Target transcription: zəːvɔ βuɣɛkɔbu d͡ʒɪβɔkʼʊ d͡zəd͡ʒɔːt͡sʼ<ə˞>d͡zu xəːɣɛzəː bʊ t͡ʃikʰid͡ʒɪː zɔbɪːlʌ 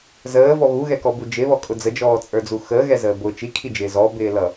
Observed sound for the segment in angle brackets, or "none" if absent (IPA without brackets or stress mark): ə˞